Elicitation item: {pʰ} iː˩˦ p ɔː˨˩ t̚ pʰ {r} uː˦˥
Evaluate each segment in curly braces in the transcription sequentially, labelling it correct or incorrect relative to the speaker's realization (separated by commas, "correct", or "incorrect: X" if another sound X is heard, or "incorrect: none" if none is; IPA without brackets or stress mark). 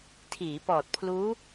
incorrect: tʰ, incorrect: l